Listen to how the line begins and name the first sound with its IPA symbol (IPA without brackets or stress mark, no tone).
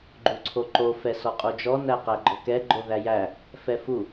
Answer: ɡ͡ǃ